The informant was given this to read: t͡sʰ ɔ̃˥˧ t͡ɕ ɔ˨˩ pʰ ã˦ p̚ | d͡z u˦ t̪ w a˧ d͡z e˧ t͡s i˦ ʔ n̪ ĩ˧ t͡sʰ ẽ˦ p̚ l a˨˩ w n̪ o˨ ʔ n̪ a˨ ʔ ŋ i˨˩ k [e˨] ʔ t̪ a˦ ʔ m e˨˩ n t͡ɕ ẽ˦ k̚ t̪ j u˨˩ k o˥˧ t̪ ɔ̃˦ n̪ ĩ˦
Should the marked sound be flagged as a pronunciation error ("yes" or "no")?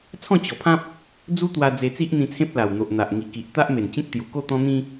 yes